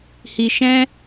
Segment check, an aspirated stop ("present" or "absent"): absent